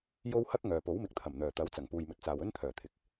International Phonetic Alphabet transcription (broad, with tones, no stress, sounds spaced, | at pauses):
j o˧ w h ɐ˥ k̚ ŋ œː˨ p o˨˥ w m ɪ˨ k̚ t̪ʰ ɐ˨˩ m n̪ œː˨˩ t̪ ɐ˨˥ w t͡s ɐ˨˩ ŋ p uː˨ j m ɵ˨ t̚ t͡s aː˨ w ɵ˥ n t̪ʰ œː˨˩ t̪ʰ ɪ˨ k̚